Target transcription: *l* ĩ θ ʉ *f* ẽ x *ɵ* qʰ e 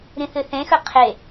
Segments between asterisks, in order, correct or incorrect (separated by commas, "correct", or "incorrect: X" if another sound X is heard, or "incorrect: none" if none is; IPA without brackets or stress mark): incorrect: ɾ, incorrect: θ, correct